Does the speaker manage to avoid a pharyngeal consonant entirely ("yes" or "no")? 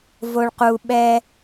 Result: yes